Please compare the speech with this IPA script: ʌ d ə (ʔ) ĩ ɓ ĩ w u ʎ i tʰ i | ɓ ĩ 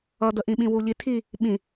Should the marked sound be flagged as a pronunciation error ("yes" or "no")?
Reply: no